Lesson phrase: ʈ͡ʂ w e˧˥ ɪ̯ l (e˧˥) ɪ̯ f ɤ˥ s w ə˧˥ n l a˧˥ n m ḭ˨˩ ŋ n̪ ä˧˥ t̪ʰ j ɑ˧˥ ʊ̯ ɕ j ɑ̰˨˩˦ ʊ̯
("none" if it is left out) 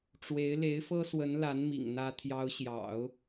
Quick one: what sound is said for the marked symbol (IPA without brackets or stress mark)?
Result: e˧˥